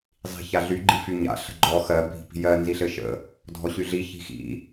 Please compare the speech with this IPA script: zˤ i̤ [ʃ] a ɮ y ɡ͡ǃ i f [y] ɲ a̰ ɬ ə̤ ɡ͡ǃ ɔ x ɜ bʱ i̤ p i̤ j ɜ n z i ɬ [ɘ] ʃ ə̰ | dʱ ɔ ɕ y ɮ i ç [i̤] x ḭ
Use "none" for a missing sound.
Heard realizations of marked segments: ç, y, ɘ, i̤

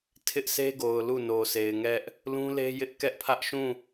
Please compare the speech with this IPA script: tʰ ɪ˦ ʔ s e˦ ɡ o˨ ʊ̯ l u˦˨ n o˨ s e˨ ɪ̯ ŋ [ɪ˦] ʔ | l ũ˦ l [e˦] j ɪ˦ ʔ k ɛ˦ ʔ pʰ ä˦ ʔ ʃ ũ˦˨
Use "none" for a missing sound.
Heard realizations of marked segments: ɛ˦, e˦

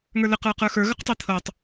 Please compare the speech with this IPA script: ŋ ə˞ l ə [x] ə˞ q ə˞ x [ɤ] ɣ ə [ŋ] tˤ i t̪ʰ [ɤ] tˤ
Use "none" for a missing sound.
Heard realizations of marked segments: q, ə˞, q, ɤ

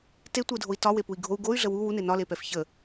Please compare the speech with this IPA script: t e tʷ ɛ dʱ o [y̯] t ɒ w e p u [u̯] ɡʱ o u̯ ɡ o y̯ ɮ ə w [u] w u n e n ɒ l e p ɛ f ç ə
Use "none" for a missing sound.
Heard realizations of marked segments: i̯, i̯, u

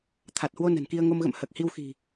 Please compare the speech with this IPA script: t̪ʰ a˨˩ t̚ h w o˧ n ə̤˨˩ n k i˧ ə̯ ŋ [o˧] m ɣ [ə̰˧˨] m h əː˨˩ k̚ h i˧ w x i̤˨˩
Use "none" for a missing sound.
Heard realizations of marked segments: o˧, ə̰˧˨

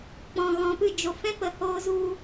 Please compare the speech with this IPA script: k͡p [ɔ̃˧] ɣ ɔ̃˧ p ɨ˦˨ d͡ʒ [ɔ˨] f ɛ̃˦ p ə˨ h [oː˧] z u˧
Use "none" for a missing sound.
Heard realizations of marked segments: ɔ̃˧, o˨, oː˧

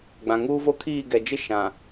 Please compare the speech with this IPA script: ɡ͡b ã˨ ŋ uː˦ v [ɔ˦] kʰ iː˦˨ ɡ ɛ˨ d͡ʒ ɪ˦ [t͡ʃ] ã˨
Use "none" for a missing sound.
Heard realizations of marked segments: o˦, ʃ

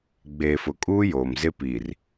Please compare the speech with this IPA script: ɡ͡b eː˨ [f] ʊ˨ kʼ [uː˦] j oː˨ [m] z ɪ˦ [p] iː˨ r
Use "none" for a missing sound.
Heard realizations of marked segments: f, uː˦, m, p

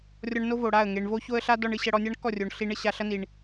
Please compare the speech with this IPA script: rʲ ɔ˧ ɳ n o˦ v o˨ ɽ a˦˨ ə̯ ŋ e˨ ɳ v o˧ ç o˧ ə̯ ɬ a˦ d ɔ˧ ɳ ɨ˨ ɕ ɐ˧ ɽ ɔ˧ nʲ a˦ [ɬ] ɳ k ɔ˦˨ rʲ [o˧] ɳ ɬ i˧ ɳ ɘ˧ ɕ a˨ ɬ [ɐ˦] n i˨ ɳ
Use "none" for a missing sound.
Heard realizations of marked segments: none, o˨, ɐ˦

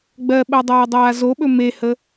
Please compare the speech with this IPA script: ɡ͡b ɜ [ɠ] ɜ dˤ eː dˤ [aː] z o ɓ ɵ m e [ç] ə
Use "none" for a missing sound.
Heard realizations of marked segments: ɓ, aː, h

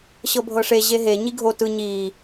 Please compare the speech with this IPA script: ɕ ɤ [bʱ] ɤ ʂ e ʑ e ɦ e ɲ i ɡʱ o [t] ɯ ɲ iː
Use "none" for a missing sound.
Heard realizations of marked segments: bʱ, t

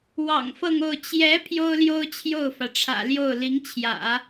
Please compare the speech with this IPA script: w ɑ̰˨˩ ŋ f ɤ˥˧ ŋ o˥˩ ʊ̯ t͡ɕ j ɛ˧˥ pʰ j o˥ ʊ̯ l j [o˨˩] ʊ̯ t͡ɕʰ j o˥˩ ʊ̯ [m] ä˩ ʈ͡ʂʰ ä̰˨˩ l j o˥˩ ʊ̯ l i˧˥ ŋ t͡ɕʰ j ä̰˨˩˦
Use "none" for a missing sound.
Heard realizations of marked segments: o˥, f

